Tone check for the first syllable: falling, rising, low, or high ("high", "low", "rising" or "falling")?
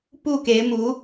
falling